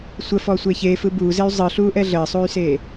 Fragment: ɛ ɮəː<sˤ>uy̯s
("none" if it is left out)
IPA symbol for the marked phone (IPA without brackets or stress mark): sˤ